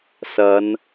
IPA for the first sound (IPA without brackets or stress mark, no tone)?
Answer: s